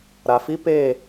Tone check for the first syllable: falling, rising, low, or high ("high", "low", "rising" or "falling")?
low